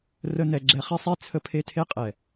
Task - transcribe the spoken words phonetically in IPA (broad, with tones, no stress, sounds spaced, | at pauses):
r ə˦ n ɛ˧ ɡ͡ǁ ɛ˧ χ e˦ sˤ e˦ t͡sʰ ə˦ pʰ e˦ tʰ e˦ qʼ ɛ˨